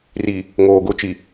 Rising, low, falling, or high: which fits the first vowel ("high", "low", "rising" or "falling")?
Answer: low